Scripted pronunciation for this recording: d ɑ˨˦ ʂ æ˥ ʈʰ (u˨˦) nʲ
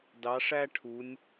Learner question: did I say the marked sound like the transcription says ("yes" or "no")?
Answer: yes